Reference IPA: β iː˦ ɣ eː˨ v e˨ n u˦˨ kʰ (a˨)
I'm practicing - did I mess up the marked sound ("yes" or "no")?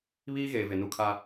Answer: yes